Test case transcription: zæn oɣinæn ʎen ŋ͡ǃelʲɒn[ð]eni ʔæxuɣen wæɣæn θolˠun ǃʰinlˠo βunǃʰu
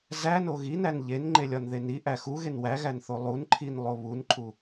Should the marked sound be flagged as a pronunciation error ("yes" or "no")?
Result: no